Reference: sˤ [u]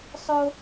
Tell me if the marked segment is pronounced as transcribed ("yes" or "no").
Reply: no